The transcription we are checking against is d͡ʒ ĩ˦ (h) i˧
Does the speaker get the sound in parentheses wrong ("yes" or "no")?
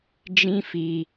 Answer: yes